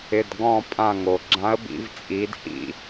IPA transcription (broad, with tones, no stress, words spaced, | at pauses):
ɪ˩˧˩dɡɔ̃˧˩ pʼã˧˩ŋo˩ɡ͡ǁã˨˥ə̯ bḭ˩˧vt͡sʼi˩˧dhḭ˧˩